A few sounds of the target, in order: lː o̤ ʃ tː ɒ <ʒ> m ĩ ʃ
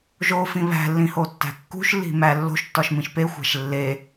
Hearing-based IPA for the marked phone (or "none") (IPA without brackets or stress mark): ʃ